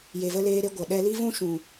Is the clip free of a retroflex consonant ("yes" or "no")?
yes